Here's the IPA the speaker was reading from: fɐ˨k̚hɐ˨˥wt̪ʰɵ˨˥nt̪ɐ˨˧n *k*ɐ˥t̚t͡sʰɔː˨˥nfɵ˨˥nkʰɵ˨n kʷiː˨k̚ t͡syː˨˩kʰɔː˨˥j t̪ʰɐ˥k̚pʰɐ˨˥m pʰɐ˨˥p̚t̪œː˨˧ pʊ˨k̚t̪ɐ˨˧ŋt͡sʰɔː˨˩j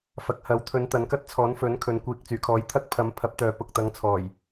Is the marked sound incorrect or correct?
correct